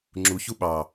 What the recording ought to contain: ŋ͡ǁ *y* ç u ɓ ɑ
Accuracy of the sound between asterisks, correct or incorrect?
incorrect